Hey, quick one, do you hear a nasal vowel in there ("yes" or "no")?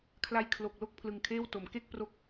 no